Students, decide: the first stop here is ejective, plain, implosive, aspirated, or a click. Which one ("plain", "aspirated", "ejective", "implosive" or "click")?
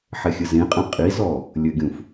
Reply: ejective